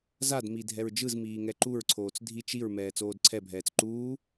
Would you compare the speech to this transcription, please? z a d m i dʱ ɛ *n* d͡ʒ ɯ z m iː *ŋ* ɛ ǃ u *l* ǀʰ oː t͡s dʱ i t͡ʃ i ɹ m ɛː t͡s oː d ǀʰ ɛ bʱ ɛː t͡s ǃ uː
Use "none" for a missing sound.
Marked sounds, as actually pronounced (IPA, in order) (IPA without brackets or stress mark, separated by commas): ɹ, ŋ, ɹ